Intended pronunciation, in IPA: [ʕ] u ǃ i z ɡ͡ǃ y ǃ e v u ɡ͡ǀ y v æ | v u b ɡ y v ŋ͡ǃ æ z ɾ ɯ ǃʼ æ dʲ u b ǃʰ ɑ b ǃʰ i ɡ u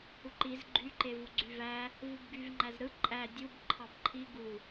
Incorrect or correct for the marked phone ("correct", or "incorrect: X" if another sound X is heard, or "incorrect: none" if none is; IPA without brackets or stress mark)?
incorrect: h